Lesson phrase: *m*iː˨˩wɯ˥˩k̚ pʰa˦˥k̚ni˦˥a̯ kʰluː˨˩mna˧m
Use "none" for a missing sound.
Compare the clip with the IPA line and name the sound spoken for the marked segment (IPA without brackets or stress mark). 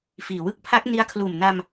f